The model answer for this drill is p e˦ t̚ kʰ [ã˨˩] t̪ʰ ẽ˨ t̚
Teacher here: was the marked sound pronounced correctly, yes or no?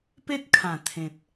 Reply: yes